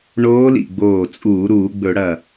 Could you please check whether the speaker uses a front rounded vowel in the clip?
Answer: no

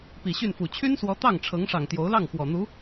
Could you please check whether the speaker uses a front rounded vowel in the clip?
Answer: yes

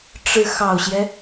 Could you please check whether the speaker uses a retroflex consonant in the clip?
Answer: yes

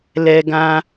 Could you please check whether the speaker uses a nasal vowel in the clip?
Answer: yes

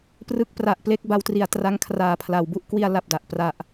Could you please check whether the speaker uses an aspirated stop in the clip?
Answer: yes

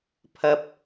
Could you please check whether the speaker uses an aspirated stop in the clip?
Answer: yes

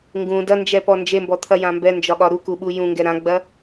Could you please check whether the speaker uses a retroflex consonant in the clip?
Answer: no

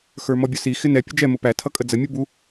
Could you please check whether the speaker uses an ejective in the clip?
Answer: yes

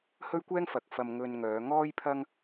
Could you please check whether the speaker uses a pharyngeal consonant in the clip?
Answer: no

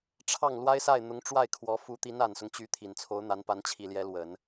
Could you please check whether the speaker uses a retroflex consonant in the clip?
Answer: yes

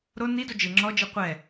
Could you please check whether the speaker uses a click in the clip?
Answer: yes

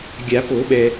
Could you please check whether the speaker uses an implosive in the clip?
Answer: yes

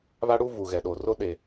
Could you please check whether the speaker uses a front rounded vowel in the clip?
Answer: no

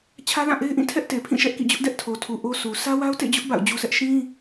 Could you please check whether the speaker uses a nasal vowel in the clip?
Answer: yes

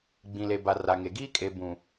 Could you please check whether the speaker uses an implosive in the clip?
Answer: no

